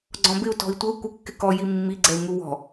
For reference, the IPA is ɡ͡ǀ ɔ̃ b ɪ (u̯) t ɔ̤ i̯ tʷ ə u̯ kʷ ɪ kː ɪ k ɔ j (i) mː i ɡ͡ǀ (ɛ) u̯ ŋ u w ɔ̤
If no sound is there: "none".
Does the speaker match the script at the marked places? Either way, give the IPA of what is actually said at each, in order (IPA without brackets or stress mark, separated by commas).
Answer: u̯, i, ɛ